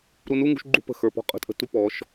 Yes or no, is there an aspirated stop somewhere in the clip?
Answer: no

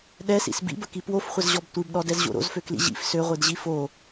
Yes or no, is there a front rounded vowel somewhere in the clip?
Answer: yes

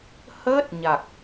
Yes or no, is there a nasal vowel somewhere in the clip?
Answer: no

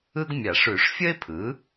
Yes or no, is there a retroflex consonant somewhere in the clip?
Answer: yes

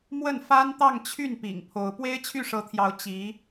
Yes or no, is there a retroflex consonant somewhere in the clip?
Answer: yes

